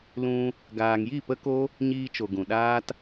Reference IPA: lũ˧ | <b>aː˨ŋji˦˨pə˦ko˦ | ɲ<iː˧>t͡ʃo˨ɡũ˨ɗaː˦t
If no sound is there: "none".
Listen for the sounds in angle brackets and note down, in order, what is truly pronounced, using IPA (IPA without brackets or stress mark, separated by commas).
ɡ, iː˧